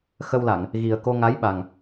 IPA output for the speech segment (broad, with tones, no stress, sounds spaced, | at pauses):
x ə˧ w l a˨˩˨ ŋ | ɣ i˨˩ ə̯ k o˧ ŋ a˧˥ j ɓ a˨˩ ŋ